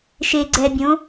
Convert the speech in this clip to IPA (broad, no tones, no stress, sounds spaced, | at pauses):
ʃ e ɡ͡ǀ ɛ bʲ õ